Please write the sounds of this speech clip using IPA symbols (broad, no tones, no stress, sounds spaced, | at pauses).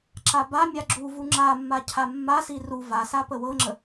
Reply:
ǁ a b a mʲ a ɡ͡ǁ u v u ŋ͡ǁ a mː a cʰ a mː a s i r u v a s a p ə w ɤ ŋ͡ǁ ə